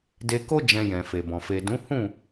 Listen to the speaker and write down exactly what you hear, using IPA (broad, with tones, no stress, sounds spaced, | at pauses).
d e˧ k o˦ d͡ʒ ɛ̃˧ j ɛ̃˨ f e˨ b ɔ̃˨ f e˨ d ũ˨˦ h ũ˦˨